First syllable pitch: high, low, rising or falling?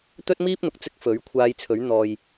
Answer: high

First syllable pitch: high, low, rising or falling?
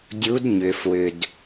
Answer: rising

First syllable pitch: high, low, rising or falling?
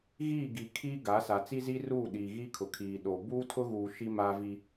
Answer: falling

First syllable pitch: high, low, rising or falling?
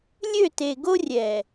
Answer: falling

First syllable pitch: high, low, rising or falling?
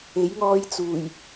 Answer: rising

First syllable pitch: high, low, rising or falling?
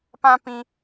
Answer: high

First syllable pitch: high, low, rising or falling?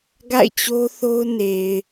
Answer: falling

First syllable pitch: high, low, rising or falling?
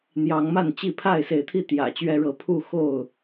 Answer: rising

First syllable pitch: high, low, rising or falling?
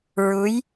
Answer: rising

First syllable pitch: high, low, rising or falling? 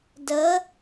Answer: rising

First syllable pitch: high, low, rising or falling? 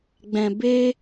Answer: low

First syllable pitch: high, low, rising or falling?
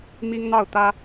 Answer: high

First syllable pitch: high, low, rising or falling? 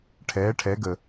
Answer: rising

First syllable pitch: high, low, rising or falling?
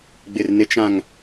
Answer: low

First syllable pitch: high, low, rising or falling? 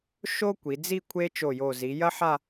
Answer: high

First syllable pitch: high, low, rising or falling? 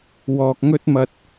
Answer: low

